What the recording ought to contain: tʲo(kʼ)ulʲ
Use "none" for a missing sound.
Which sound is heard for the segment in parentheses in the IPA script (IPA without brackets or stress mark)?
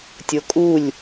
kʼ